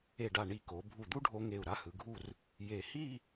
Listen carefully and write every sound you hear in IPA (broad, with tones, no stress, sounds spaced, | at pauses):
e˧˩ ɖ a˧˩ ɳ i˧˩ k o˩˧ bʱ u˧˩ d̪ u˥ ɖʱ o˧ ŋ e˧˩ u̯ ɾ a˥˧ h ɯ˩˧ ɡʱ u˥˧ r | j e˧˩ h i˥˧